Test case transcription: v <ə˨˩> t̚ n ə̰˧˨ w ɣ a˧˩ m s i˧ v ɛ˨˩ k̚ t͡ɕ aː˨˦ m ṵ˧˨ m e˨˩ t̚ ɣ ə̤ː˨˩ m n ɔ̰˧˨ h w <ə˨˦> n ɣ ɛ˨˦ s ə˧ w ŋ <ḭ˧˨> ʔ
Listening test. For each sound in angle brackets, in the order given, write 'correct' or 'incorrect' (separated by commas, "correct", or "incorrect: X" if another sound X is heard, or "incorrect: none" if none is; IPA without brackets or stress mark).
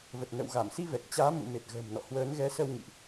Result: correct, incorrect: əː˨˦, correct